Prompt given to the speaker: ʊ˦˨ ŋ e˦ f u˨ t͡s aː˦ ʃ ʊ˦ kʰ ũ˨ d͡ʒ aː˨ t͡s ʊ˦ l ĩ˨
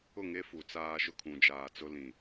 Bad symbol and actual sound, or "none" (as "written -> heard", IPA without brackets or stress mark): none